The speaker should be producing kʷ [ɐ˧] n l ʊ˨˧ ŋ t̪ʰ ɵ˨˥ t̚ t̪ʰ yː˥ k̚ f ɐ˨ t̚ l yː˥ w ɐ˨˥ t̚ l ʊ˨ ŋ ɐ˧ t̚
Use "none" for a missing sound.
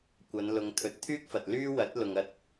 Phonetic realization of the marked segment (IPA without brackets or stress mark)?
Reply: ɐ˨˧